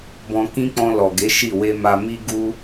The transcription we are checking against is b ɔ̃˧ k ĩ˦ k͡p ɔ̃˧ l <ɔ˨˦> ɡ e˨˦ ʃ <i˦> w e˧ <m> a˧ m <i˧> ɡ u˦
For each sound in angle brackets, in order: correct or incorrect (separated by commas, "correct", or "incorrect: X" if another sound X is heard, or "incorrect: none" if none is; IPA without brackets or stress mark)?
incorrect: ɔ˨, incorrect: i˦˨, correct, incorrect: i˦